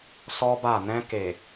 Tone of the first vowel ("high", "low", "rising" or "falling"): high